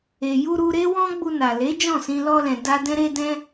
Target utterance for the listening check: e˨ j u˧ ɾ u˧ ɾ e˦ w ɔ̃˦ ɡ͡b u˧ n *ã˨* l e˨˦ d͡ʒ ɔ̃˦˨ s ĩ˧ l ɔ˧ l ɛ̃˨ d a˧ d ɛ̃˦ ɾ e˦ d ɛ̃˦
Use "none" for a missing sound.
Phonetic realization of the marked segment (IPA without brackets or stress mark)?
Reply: a˨